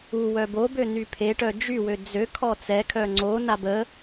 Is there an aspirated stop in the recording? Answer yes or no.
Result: yes